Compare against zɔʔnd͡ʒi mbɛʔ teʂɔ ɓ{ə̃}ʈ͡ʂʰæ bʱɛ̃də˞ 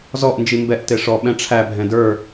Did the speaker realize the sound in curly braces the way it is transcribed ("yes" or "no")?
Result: no